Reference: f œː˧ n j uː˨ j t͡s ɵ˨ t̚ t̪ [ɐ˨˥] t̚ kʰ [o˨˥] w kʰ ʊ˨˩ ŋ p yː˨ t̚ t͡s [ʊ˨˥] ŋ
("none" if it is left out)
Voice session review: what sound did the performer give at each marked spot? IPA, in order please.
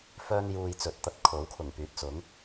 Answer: ɐ˧, o˨˥, ʊ˨˥

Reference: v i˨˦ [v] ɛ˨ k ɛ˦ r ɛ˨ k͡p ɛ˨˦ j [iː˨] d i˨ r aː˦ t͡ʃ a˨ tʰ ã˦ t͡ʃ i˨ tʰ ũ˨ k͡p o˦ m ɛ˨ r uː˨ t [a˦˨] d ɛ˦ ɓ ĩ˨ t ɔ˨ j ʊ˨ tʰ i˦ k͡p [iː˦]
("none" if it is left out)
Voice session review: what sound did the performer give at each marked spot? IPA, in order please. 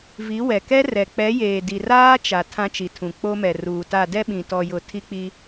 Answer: w, eː˨, a˦˨, i˦

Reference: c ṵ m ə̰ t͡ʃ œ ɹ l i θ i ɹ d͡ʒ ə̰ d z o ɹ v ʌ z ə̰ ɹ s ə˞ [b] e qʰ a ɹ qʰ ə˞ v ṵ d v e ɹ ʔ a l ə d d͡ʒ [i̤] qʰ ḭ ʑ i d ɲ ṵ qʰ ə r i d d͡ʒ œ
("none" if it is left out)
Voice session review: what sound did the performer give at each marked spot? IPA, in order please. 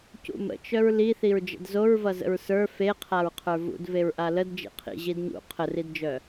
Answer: f, ḭ

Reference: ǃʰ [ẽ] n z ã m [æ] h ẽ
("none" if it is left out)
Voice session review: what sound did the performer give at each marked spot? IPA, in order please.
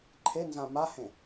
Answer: e, a

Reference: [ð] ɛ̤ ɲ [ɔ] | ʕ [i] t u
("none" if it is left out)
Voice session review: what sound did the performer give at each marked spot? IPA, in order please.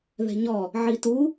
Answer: ð, ɔ, i

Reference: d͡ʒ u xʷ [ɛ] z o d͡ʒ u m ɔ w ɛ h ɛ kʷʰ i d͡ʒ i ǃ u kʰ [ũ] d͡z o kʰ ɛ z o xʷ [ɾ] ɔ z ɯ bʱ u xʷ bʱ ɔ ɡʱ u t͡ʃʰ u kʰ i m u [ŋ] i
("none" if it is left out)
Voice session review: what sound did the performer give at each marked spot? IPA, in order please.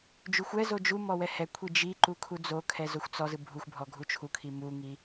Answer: ɛ, u, t͡s, ŋ

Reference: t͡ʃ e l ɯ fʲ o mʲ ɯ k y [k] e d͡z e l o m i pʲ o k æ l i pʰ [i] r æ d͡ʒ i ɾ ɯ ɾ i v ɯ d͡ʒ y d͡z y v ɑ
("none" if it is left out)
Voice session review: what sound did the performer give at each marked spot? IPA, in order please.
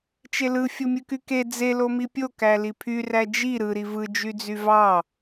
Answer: k, y

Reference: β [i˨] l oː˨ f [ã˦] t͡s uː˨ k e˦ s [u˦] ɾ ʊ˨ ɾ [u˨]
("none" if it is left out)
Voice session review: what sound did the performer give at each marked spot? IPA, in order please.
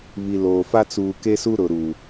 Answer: i˨, a˦, u˦, u˨

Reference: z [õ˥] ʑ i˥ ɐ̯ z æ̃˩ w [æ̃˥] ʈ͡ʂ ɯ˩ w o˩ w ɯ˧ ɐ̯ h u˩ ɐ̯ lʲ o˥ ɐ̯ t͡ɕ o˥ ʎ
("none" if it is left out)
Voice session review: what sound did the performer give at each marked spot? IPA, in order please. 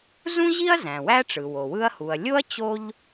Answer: ũ˥, æ˥

